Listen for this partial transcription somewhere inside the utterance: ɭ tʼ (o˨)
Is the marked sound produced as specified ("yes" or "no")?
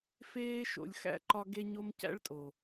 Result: yes